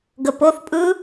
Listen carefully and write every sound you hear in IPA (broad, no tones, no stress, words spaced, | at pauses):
ɡəp oθ pʼɯ